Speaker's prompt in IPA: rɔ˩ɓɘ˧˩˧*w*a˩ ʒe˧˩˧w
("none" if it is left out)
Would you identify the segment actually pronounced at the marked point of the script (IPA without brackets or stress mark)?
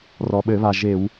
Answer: β